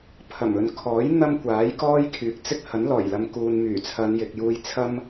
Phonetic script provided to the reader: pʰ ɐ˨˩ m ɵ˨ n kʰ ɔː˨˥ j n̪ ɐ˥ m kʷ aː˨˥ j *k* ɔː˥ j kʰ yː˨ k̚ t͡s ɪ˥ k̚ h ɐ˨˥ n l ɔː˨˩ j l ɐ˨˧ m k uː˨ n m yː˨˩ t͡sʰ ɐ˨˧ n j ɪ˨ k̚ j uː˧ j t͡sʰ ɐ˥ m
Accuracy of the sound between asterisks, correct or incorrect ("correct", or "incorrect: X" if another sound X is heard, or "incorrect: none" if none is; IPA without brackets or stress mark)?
correct